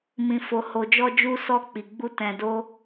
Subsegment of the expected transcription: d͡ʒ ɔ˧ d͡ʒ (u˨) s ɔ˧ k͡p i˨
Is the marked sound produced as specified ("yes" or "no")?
no